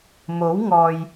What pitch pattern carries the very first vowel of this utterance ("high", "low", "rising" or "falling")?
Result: rising